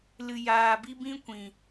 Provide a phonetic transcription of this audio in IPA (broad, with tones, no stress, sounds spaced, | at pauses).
l ɨ˧ j aː˧ b i˦ b ĩ˦ kʷ ĩ˨